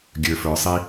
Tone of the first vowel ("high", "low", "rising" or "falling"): low